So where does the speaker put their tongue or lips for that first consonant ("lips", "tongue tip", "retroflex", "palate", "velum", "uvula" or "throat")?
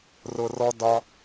tongue tip